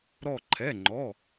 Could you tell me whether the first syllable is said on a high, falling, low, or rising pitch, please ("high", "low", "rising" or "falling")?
falling